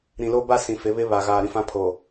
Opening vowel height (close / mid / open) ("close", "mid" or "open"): close